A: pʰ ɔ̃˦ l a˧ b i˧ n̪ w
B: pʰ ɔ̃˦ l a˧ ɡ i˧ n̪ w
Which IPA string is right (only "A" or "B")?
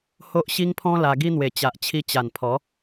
B